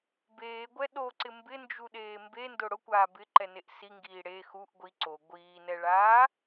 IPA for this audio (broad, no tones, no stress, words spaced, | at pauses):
beːɡʷɛ ɗoǀɪ mbɪnd͡ʒuɗeː mbendʊ ɽʊkʷaː bɪǃɛneʔ siŋɡiː ɽe xuʔ ɡʷi ǀo ɡʷiːnɛɭaː